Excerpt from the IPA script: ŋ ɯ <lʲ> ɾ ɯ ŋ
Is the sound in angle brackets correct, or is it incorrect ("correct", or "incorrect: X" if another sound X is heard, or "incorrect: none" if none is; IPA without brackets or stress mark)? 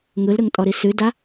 incorrect: l